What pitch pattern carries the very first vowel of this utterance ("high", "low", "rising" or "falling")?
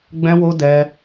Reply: high